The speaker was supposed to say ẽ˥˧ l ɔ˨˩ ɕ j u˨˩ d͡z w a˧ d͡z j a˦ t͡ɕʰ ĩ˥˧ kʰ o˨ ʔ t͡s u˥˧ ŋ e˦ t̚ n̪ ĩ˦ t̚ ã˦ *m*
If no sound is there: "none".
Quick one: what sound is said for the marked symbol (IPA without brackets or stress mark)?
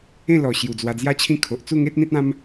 m